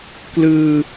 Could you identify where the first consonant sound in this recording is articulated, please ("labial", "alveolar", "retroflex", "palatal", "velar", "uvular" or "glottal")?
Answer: velar